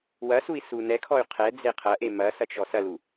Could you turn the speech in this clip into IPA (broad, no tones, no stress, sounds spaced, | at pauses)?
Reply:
w ɐ s u i̯ s u n ɛ kʰ ɔ y̯ qʰ ɛ d͡z e qʰ ɐ ʔ e m ɐ s ɐ t͡ʃ ɔ s ɐ l u